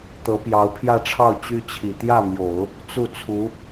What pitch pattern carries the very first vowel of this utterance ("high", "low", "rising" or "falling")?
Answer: rising